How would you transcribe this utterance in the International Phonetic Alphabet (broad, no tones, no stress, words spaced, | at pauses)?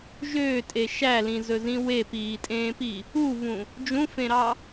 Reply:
ʒøːtʼe ʃælĩzɵzĩ wepiːtʼẽːpi | uvũ | d͡ʒũfẽɾɑ